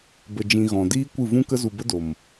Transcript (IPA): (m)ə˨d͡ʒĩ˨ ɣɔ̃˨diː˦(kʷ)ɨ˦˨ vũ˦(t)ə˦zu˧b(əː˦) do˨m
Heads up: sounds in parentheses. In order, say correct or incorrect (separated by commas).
incorrect, correct, incorrect, incorrect